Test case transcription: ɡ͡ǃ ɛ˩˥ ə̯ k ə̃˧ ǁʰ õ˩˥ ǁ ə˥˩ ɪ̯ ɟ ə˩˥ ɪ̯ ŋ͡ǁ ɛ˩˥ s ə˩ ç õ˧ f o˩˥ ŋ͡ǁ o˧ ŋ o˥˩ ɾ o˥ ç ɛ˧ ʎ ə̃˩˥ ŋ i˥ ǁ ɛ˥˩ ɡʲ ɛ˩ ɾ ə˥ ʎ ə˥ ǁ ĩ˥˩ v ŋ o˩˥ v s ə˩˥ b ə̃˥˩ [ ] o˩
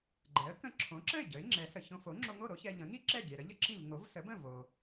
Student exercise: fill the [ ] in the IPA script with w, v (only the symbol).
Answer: v